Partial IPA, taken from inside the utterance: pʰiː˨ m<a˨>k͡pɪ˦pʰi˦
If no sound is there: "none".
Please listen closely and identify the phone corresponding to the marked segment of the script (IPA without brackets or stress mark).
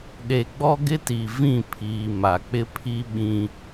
a˨